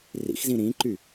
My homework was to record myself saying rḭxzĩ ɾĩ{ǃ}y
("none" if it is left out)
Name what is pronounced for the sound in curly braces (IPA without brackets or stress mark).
ǃ